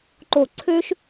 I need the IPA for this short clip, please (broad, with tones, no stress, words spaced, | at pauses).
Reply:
ǃo˧˩ ǀʰø˥ʃ